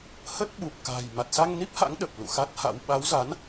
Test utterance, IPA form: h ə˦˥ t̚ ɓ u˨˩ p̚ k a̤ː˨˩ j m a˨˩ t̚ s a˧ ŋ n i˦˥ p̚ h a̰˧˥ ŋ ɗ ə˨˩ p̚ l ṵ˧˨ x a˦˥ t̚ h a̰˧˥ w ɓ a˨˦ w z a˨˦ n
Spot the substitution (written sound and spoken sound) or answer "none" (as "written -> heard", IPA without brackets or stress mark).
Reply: none